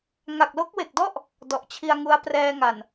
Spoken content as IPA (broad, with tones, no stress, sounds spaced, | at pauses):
ŋ a˨˩ k̚ l o˦˥ k̚ w e˨˩ k̚ d ɔ˥˩ ʔ | d ɔ˨˩ ʔ t͡ɕʰ i˧ a̯ ŋ u˦˥ a̯ p r ɛː˧ ŋ a˨˩ n